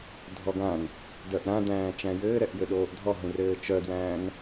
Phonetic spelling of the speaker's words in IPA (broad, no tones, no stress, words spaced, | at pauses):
dʱɔɡãn | dœʔɾãdæ̃ː t͡ʃæ̃jɘː ɾɛʔjɘɗoːʔdʱɔ ɦũrɘːt͡ʃœdwæ̃ːn